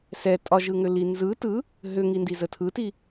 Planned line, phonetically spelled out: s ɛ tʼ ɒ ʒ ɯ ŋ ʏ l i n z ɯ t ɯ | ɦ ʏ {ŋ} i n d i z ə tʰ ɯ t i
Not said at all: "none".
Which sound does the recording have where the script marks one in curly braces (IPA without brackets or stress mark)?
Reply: ŋ